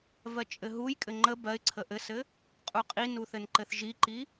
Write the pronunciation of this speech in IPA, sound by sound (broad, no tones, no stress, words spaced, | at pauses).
vɜt͡ʃʼɘɦujkʼɘ ŋ͡ǃə bɜɪ̯ǀʰə ʔɘsɘ | qʼuqʼinu θɘnǃɘθʒiǃi